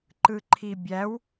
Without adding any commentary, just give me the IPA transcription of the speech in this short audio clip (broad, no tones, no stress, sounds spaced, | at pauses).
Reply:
ǃ ɯ ǃʰ i bʲ æ w